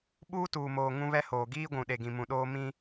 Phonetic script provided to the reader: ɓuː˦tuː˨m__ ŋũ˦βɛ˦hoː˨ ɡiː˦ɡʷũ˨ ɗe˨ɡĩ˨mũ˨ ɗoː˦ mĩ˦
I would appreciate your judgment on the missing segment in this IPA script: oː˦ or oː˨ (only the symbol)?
oː˨